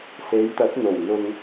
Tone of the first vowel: rising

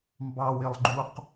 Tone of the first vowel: high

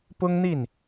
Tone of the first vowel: high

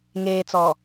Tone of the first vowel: low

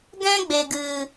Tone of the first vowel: high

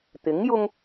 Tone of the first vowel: rising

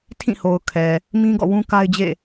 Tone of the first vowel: falling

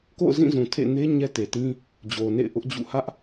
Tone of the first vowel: falling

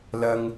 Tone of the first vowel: low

